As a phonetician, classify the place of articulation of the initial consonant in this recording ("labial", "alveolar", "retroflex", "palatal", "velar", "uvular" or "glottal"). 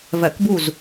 labial